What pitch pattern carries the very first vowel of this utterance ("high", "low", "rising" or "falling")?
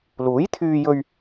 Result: rising